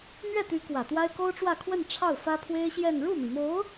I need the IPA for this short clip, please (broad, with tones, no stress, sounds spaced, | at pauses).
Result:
n̪ ɥ ɛ˥˩ t̪ y˧˥ k w ä˨˩ t̪ w a˥ ɪ̯ k o˥ ʊ̯ ʈ͡ʂ w ä˥˧ kʰ w ə˥˧ n ʈ͡ʂʰ ɑ˥˩ ʊ̯ f ä˥ pʰ w e˥ ɪ̯ ɕ j ɛ˥˧ n ɻ u˥˩ m i˩ m o˧˥ ʊ̯